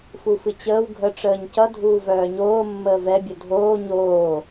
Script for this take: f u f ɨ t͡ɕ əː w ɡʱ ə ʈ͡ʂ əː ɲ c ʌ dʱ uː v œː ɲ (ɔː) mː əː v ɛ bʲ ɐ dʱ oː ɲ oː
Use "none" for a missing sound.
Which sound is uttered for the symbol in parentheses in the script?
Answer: oː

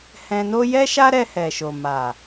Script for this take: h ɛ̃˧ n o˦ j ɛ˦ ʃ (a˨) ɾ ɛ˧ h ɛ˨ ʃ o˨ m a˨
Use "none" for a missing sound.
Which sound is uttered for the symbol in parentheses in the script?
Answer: a˦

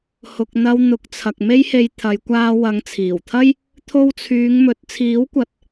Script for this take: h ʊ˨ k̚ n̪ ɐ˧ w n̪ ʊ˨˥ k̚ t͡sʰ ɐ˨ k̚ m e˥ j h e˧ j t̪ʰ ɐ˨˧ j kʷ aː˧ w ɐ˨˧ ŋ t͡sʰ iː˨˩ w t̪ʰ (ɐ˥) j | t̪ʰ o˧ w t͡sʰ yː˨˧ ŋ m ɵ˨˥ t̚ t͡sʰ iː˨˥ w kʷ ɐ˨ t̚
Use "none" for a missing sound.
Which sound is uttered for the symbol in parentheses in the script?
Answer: ɐ˥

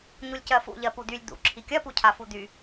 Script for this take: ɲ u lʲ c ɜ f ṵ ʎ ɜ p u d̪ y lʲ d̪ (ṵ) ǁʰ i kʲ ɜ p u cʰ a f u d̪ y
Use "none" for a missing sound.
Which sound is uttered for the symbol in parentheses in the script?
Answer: ṵ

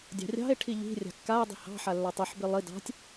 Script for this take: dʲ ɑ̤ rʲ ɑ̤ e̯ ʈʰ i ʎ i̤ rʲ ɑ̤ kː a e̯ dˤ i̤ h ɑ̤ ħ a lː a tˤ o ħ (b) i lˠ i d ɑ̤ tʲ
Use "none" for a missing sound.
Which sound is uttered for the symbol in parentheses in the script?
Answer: b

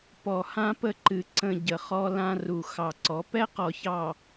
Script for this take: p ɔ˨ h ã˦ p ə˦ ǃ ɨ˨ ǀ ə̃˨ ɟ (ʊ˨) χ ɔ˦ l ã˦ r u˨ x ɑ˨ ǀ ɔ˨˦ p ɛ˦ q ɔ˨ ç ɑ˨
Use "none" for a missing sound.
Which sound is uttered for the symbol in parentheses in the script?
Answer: ə˨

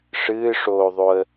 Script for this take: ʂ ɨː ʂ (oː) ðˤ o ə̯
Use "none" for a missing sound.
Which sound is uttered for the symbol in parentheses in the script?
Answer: oː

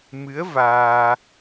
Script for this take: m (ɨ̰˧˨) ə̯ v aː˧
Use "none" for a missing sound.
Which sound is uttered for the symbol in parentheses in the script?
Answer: ɨ˨˦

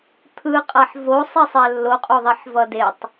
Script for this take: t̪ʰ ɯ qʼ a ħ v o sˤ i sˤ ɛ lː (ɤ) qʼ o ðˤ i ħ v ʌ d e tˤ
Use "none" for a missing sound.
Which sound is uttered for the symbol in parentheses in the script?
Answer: o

